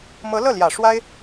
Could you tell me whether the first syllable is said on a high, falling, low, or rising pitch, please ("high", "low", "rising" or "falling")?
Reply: rising